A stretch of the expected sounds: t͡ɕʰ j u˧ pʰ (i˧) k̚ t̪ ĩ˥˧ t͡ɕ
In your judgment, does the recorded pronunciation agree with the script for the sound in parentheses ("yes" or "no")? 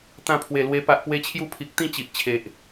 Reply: no